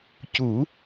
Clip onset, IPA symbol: c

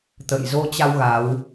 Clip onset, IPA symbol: t̪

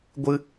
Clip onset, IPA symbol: ɡʷ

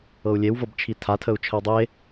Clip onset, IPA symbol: ɤ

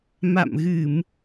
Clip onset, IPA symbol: m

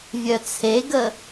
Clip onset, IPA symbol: vʲ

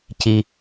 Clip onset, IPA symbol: c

